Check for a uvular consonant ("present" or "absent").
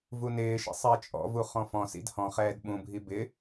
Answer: present